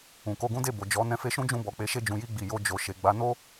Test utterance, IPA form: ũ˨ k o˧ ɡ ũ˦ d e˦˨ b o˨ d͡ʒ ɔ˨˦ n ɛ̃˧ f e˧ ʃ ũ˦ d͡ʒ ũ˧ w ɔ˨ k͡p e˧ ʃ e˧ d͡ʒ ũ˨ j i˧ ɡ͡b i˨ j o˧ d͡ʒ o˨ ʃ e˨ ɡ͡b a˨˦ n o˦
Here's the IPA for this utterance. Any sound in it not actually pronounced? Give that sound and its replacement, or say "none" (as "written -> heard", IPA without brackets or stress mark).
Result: w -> b